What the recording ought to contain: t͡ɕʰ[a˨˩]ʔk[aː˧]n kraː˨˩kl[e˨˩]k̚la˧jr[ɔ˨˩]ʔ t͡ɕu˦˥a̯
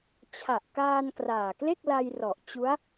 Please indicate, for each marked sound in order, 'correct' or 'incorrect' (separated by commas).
correct, correct, incorrect, correct